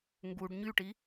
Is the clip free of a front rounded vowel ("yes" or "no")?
no